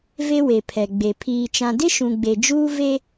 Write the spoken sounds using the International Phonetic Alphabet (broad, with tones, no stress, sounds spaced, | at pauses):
v e˦ w e˨ pʰ ɛ˨ ɡ͡b e˨ pʰ iː˨ t͡ʃ ã˨ d ɪ˦ ʃ ũ˨ ɡ͡b e˨ d͡ʒ uː˦ v e˦